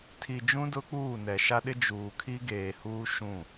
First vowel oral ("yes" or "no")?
yes